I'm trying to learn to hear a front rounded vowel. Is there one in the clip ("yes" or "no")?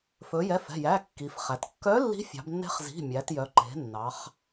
yes